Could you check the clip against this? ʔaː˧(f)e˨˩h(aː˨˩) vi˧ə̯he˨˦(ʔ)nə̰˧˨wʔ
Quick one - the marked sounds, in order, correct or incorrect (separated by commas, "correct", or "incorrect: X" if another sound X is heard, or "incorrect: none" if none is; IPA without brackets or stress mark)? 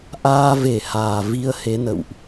incorrect: v, correct, incorrect: none